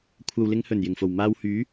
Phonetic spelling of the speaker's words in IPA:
kʷʰ ɐ˨ w l ɪ˧ ŋ h ɵ˨˩ n j ɪ˨˩ ŋ f o˨˩ w m aː˧ w h yː˨˥

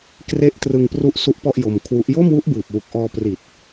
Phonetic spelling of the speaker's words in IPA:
k r e˦˥ ʔ t r ɯ˧ ŋ p r u˦˥ ʔ s u˦˥ ʔ p ɔ˥˩ ʔ j o˧ m kʰ w u˦˥ ʔ j o˥˩ m w u˦˥ ʔ b ɯː˨˩ p̚ w u˨˩ k̚ ʔ ɔː˧ p r i˨˩ t̚

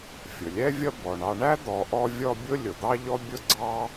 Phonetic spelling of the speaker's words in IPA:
fʲ ʊ˩ lʲ ɛ˥ vʲ ʌ˦ b ɔ˩ ɳ ɑ˨ ɳ æ˥ d̪ ɔ˨ ʔ ɔ˦ vʲ ɔ˦ bʲ ʊ˥ lʲ ʊ˩ d̪ ɑ˥ ʎ ɔ˥ bʲ ʊ˥ ɡ͡ǀ ɑ˥

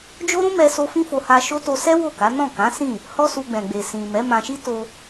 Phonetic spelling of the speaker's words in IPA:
d͡ʒ o˦ ɾ ũ˦ m ɛ˧ s o˧ f ĩ˦ f o˧ h a˧ ʃ o˦ t o˧ s ɛ˦ w o˦˨ k a˨˦ n ɔ̃˦˨ k ã˨˦ s ĩ˦˨ | h ɔ˦ s u˧ ɡ͡b ɛ̃˨ ɡ͡b e˨ s ĩ˨ m ɛ˨˦ m ã˧ ʃ i˦ t o˧

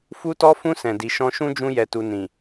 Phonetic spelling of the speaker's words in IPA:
f u˧ t ɔ˧ f ũ˧ s ɛ̃˨ d i˨ ʃ ɔ̃˧ ʃ ũ˦ d͡ʒ ũ˧ j ɛ˨ t u˨ n ĩ˨

